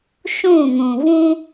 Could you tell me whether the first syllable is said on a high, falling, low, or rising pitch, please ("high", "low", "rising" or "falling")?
falling